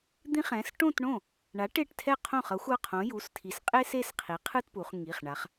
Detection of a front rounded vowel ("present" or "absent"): absent